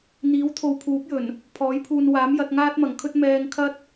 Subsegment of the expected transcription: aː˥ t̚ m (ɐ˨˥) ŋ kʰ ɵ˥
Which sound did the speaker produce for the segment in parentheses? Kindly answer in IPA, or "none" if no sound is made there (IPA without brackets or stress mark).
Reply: ɐ˨˩